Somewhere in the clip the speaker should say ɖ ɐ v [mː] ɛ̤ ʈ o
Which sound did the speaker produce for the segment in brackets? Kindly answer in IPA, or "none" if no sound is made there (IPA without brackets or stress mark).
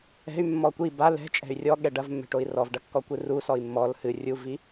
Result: mː